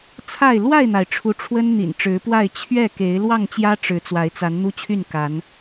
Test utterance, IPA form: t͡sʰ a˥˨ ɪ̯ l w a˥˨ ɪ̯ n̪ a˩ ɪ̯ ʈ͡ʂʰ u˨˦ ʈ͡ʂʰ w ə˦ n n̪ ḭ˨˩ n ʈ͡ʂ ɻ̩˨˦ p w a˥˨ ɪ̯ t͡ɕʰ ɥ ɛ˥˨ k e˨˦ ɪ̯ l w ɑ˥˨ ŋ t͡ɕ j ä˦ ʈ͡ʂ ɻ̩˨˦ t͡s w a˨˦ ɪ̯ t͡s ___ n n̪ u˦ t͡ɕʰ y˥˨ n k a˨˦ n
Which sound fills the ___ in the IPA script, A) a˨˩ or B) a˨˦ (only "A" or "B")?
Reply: B